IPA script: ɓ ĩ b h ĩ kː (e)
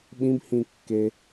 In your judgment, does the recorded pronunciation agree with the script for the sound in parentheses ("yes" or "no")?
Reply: yes